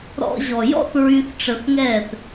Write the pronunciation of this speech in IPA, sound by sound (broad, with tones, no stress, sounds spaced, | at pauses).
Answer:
ɾ ɔ̰˧ ʑ ɔ˨ j ɔ̰˦ θ ɹ y˧ θ ʈ͡ʂ ə˧ θ ŋ ɛ˦˨ θ